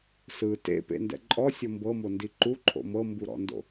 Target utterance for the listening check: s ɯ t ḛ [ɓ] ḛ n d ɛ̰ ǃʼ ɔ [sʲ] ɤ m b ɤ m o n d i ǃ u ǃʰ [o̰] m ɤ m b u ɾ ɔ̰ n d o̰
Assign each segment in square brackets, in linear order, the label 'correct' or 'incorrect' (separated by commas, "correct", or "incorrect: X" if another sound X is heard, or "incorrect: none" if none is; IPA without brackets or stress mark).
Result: incorrect: p, correct, correct